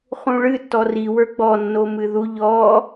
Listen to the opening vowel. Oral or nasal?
nasal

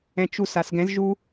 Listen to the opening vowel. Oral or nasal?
nasal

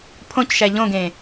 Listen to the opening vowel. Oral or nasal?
nasal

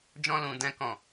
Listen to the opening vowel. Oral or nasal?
nasal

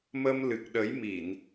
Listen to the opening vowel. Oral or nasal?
oral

